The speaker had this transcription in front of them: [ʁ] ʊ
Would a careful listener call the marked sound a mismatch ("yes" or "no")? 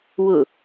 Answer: yes